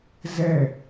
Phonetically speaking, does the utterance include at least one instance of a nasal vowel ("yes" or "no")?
no